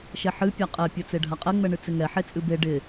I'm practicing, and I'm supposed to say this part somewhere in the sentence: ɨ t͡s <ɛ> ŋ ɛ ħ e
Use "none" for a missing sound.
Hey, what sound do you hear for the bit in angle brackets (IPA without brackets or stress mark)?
ɪ